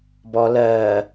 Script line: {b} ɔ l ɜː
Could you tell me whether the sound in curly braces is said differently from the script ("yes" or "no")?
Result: no